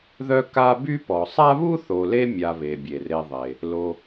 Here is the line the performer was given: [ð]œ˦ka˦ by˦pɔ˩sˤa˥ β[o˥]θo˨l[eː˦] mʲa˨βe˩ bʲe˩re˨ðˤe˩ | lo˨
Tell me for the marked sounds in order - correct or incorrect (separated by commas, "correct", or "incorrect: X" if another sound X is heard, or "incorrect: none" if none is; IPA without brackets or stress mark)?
correct, incorrect: u˥, incorrect: e˦